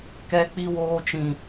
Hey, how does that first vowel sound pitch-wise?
low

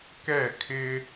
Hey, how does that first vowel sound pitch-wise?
falling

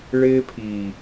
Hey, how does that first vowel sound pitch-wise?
high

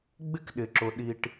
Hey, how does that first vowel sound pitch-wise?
high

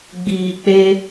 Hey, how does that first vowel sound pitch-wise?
low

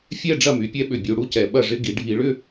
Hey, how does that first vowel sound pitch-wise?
falling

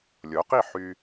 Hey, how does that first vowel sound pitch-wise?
rising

